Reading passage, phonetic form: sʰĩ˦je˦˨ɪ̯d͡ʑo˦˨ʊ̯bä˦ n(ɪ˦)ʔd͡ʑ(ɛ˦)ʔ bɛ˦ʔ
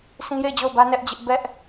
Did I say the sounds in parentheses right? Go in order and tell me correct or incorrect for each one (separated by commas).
incorrect, incorrect